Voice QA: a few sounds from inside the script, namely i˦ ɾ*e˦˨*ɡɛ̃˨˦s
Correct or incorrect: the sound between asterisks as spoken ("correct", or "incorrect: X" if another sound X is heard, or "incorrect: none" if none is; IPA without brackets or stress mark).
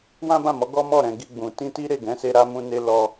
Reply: correct